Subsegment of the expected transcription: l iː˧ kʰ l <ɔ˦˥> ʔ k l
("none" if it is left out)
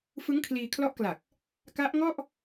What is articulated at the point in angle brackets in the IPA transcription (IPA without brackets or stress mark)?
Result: ɔ˦˥